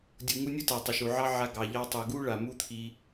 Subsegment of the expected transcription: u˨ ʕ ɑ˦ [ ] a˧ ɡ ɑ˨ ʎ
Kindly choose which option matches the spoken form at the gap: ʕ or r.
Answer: ʕ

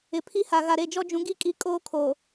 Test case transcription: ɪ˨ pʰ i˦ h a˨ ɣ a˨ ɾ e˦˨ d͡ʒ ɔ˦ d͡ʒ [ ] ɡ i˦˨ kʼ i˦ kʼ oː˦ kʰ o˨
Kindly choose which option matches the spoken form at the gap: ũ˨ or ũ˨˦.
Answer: ũ˨˦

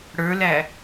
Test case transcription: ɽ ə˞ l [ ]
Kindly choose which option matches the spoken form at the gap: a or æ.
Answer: æ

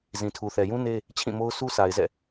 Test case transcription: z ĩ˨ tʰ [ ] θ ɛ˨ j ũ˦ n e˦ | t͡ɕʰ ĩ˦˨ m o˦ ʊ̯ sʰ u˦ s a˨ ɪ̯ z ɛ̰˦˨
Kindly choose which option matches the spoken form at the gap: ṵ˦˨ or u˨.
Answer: u˨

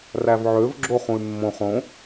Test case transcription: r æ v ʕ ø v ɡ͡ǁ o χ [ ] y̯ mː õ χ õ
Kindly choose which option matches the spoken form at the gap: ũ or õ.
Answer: ũ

